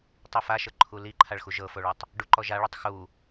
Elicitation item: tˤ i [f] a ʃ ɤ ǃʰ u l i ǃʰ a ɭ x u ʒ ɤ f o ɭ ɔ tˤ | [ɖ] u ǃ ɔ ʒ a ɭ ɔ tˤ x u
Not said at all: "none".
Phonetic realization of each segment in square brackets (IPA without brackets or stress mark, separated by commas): f, ɖ